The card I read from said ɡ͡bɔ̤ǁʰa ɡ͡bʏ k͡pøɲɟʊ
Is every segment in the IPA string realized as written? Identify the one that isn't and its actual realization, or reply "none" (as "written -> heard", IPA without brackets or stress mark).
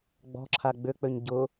none